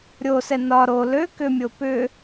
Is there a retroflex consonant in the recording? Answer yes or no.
no